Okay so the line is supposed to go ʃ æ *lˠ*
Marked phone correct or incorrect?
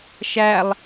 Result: correct